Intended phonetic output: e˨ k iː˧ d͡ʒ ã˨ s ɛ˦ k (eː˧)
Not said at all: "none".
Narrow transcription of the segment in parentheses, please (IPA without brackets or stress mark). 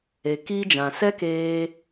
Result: eː˧